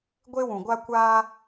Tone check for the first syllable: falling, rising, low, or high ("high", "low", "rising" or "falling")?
high